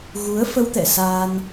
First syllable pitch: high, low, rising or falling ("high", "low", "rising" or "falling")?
rising